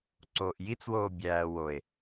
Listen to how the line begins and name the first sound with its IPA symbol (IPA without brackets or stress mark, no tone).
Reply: ǀ